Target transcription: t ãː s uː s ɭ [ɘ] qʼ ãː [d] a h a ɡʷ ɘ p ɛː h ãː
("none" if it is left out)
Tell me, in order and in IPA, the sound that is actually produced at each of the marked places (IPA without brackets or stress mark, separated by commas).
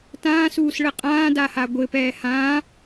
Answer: ɘ, d